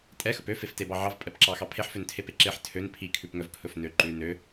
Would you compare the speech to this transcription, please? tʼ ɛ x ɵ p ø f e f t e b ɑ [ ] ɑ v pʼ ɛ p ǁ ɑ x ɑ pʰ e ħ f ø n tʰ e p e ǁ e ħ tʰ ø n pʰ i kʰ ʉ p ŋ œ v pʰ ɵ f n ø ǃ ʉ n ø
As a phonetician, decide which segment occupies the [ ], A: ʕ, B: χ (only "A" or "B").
A